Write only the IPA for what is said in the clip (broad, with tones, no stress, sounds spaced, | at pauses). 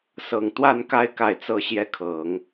s ɤ˨˩ ŋ t̪ w a˥˧ n k a˥˧ ɪ̯ k a˥˩ ɪ̯ t͡s ɤ˥ ɕ j ɛ˥ kʰ ɤ˨˩˦ ŋ